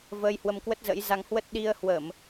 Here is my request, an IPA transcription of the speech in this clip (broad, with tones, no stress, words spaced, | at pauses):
vəː˧jhwə˧mkwə˦˥t̚zə̰˧˥j za˧ŋhwə˦˥t̚ ɗi˧ə̯ hwə˧˩˨m